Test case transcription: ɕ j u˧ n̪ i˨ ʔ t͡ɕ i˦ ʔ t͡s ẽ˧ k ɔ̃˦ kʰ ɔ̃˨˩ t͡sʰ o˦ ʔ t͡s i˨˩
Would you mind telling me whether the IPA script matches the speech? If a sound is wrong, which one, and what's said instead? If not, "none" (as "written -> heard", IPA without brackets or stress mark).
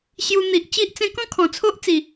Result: none